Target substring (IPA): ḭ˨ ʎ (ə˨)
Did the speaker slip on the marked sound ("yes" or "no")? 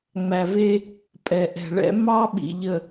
no